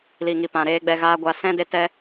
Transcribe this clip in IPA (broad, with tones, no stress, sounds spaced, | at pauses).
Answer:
l i˨ ŋ i˨ p ã˨ ɾ eː˧ ɡ͡b ɛ˧ ɣ aː˦ ɡʷ a˧ s ɛ̃˦ d e˧ t ɛ˧